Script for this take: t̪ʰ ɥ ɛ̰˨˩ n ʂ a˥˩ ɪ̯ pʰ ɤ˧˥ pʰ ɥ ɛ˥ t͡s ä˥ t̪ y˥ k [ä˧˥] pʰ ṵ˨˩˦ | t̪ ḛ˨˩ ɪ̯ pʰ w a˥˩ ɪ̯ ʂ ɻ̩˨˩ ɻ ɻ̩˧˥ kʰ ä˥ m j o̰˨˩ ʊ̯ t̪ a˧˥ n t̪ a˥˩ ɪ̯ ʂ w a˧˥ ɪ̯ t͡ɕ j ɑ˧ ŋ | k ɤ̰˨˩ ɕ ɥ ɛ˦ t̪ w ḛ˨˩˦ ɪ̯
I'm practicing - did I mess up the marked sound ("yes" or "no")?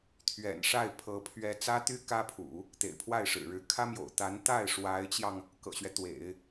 yes